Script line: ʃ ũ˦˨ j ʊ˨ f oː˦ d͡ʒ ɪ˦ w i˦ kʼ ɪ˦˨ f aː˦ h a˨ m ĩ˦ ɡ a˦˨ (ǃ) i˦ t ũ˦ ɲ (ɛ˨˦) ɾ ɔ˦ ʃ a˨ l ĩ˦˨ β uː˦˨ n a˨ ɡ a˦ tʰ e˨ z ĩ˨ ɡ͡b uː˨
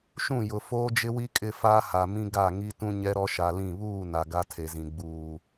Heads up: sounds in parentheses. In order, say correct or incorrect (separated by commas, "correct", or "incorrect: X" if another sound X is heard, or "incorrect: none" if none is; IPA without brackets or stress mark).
incorrect: ŋ, incorrect: ɛ˦